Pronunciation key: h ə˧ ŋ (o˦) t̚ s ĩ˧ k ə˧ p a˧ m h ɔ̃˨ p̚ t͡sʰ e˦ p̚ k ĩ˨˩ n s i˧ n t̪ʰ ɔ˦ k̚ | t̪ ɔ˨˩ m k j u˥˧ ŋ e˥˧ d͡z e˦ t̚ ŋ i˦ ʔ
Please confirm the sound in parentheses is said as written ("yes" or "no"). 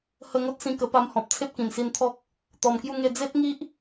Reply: yes